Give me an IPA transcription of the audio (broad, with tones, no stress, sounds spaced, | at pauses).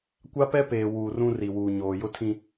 kʷ a˦ p ɛ˦ p eː˨ w uː˨ r ũ˦ r i˨ w uː˨ ɲ oː˨ j ʊ˦ tʰ ĩ˦